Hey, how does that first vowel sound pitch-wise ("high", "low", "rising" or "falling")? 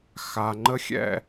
low